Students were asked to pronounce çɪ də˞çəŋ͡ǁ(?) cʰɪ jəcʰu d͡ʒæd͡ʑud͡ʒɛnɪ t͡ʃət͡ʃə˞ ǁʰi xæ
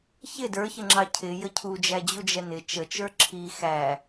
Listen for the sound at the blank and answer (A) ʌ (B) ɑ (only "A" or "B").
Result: B